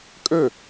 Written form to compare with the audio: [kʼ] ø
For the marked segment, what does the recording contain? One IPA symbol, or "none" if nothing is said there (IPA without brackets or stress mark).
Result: kʼ